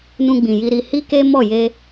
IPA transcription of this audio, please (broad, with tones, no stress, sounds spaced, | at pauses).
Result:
n ũ˧ ɡ͡b ĩ˨ j i˧ ɾ i˧ h i˦ k e˦ m ɔ˦˨ j e˧